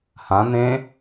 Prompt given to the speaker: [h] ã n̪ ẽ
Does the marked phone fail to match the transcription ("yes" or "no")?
no